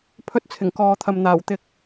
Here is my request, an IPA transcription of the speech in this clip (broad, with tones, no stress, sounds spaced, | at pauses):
pʰ ɵ˧ t̚ t͡sʰ ɪ˨˩ ŋ k ɔː˨ t̪ʰ ɐ˨ m n̪ aː˨˩ w t̪ ɪ˧ k̚